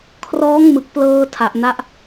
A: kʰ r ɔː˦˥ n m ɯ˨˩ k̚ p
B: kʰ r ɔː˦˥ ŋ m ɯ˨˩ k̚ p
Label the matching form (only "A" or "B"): B